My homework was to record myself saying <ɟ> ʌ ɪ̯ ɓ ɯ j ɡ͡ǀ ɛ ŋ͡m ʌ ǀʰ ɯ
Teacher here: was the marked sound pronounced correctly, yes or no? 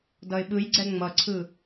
no